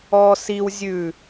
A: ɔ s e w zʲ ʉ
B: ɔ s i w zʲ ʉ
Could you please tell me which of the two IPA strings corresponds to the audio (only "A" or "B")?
B